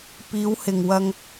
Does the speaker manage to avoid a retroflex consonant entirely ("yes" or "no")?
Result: yes